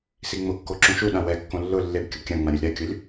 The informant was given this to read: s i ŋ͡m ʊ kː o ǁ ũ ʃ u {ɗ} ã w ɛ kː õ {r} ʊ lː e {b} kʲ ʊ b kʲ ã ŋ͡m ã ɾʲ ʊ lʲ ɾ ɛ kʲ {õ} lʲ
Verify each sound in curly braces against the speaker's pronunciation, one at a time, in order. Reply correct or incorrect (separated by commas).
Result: correct, incorrect, correct, incorrect